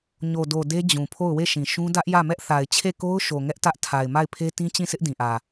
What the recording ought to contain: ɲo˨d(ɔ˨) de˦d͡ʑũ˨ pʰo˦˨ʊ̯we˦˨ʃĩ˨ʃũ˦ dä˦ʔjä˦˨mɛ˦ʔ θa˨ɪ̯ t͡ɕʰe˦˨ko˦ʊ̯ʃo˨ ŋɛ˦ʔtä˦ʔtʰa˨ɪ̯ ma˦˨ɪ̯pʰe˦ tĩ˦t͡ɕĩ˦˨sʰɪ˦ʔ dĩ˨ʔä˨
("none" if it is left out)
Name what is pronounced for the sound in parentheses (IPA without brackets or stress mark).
o˨